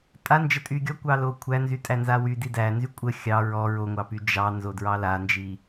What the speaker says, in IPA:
tʼ a n d͡ʒ ə tʼ y ɡʲ ɔ kʷ ɑ l o kʷʰ æ n z y tʼ æ n z a w y d i d æ n z y kʷʼ ə xʲ ɑ ɹ ɔ ɹ o ŋʷ ɑ p y d͡ʒ ɑ n z o d ɹ ɑ l a n d͡ʒ i

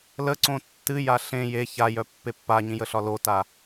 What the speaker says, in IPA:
l ə ǀ õ tː ɨ j a ɬ ẽ j e ç a j œ pː e pː a ɲ ĩ j ə ɬ ɒ l o t a

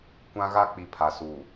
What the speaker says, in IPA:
kʷ ã˦ ɣ a˦ k͡p i˨ pʰ a˨ s uː˨

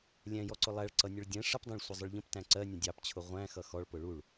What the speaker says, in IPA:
lʲ ɛ̃ j ɔ ǀ ʊ lˠ æ ɭ ǀ ʌ nʲ ʊ ɭ dʲ ɛ̃ ʂ ə p dˤ ɛ̃ ɭ sʷ ʌ zˤ ʊ ɭ ʎ ə̃ p t æ̃ ǀ ɜ nʲ ə̃ dʲ ɑ p t͡ɕʰ ʊ ʁʷ æ̃ x ʌ x ɔ ɭ p ʊ ɭ u ɭ

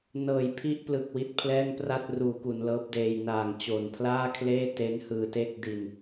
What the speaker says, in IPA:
n ɤː˩˦ j pʰ i˦˥ ʔ p l ɯ˨˩ k̚ w i˦˥ t̚ pʰ l ɛː˥˩ ŋ p r a˥˩ t̚ r uː˩˦ k u˩˦ n l ɤː˦˥ p̚ d eː˧ j n aː˨˩ ŋ t͡ɕ o˨˩ n pʰ l aː˥˩ kʰ l eː˥˩ t e˦˥ n h ɯː˧ t e˥˩ k̚ d i˧ n

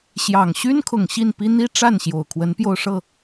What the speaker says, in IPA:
ɕ j ɑ˨˩ ŋ ɕ y˥ n kʰ ʊ˨˩ ŋ ɕ i˥˩ n p i˥ n̪ i˥ ʈ͡ʂ a˥˩ n ɕ j o˨˩ ʊ̯ kʰ w ə˧˥ n p j o˥˧ ʊ̯ ʂ ɤ˥˩

